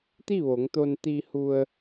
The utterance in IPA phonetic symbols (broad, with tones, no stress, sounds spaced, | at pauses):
t̪ i˥˨ ʋ o˩˧ ŋ t̪ o˧ n t̪ i˧ h u˧ ə̯